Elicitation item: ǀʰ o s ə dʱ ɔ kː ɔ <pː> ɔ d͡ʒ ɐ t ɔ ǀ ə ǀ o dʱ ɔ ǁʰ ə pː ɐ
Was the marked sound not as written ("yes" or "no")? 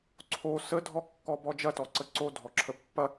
yes